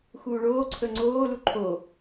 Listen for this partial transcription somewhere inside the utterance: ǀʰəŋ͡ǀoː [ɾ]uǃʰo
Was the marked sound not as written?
yes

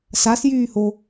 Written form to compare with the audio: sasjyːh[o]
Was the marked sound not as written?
no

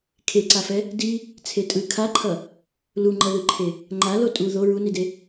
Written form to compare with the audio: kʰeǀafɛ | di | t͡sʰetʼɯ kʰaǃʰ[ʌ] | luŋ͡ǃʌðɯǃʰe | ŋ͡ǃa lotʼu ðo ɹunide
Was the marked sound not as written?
no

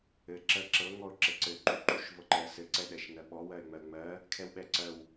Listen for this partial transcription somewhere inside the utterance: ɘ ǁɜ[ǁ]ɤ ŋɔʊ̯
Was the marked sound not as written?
no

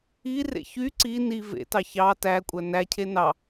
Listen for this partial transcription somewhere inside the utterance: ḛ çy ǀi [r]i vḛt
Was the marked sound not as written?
yes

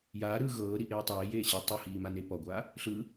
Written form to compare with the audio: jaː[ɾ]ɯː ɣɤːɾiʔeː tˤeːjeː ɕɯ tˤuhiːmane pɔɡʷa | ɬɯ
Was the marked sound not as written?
no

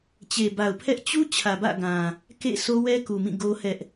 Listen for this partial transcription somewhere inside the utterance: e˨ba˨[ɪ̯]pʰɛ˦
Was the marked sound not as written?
yes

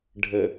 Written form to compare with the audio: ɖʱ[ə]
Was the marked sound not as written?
no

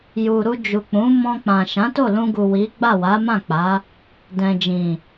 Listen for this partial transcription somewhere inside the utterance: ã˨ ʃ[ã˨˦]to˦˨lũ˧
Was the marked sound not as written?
no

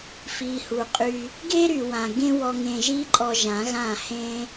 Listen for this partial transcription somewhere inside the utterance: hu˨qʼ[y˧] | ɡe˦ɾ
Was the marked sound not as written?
no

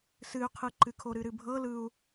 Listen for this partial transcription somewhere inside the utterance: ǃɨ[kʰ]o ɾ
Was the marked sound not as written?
no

